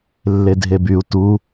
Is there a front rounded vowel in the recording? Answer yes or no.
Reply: yes